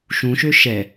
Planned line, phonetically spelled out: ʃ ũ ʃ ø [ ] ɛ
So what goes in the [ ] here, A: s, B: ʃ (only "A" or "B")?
B